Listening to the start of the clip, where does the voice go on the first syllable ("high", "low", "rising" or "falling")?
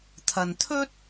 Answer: low